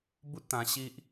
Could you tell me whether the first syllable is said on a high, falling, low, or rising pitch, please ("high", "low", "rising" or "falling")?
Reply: high